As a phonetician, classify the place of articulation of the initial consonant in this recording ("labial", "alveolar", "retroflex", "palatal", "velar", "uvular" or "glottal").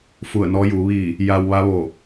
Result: labial